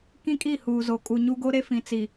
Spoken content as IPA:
k ĩ˦ kʼ i˦˨ h uː˨ z o˨ kʼ u˨ ɲ u˦ ɡ o˦ ɾ e˦ f ĩ˨ t͡s i˨

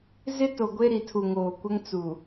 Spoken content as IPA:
z ɪ˦ t o˨ ɡʷ e˦ ɾ i˨ tʰ u˨ ŋ oː˨ kʷ ɛ˦ ŋ t͡s u˨

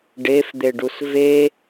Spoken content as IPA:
ɖ e f d̪ e ɖ u s v e

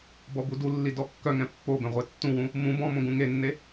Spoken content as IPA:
b ɔ b u d u lː i d ɔ kː œ ŋ ɛ̃ pː o b ɛ̃ ʁʷ e tː ũ w ũ | m ũ b ɔ̃ m õ ɡ ũ ŋ e nː e

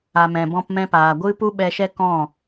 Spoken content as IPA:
a˨ m ɛ̃˨ b ɔ̃˧ p m ɛ̃˧ p aː˨ ɡʷ ɨ˦ p u˦ ɓ ɛ˧ ʃ ɛ˦ k ɔ̃˦˨

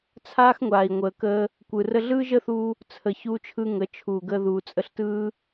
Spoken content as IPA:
t͡sʰ aː˦ x ŋʷ aː˨ i̯ ŋʷ əː˨ k əː˧ | kʷ ɯ˨ r ə˧ ɮ ɯː˦ ʒ əː˦ θ uː˧ | t͡sʰ ə˨ ç uː˧ t͡ʃʰ ɯ˧ ŋ ə˨˦ t͡ʃʰ uː˨ ɡ əː˧ ð uː˨ t͡sʼ ə˧ ɬ t ɯː˦

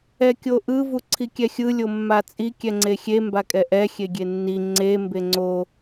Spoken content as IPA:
ɛ kʲ o ʔ ɯ v u ǀʰ i kʲ ɛ xʲ ɯ lʲ o mː a t͡sʼ i kʲ ɛ ŋ͡ǀ e xʲ e m b a kʼ ɛ ʔ ɛ xʲ e ɡʲ e nː i ŋ͡ǀ e m b e ŋ͡ǀ o

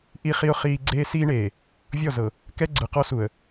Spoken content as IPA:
ʔ i˦ χ i˦ ʊ̯ χ iː˦ ɡ͡ǀ eː˦ s iː˦ ɳ eː˨ | vʲ ɔ˦˨ z ɤ˨ | k ɛ˦ ɡ͡ǀ ɯ˨ q ɔ˦ s u˨ ə̯

